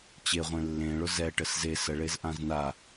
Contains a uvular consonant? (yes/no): yes